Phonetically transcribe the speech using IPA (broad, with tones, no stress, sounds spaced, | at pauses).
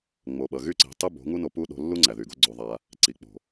ŋ͡m o˨ ɓ ʌ˨ ɣ y˦ ǀ e̤˨˦ tˤ ɯ˦ b o̤˨˦ ŋ u˦ n o˧ p u˦ ɗ o̤˧ lː u˦ ŋ͡ǀ æ˨ ð y˨ ɡ o˦ ɡ͡ǀ o˧ ðˤ a˧ | ǀ i˨ k͡p o̤˨